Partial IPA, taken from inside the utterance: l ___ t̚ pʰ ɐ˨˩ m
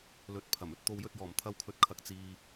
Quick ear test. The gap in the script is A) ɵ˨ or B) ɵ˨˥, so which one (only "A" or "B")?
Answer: B